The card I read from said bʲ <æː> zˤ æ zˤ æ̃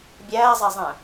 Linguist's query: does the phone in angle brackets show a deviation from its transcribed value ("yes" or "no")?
no